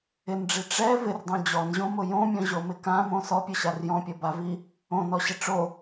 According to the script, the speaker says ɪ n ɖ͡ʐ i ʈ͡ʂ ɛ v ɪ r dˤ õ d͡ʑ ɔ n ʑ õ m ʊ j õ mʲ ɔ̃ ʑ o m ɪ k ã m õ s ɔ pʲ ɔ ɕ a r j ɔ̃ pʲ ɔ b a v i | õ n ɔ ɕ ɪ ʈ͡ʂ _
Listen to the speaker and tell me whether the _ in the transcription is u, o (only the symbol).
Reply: o